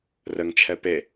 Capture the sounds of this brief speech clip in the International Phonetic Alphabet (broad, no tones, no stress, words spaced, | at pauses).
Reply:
rəŋt͡ʃʰɛ pe